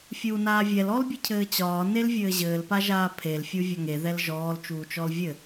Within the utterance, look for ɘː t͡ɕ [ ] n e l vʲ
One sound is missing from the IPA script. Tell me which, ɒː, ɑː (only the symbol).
ɒː